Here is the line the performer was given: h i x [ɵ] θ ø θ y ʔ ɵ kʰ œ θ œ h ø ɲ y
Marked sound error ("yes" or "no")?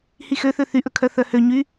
yes